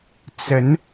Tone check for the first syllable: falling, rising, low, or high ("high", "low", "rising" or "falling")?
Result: rising